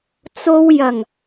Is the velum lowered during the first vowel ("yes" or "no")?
no